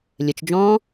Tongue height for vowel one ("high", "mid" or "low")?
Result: mid